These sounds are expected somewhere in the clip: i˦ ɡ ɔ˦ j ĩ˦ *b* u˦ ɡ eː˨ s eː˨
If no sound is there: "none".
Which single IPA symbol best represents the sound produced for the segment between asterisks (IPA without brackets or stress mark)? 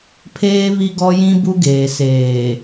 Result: b